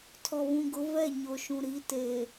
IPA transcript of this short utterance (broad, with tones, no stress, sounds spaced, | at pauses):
tʰ ɔ˨ β ũ˨ ɡ ʊ˨˦ v ɛ˦˨ ɲ o˨ ʃ ũ˨ ɾ i˨˦ t e˨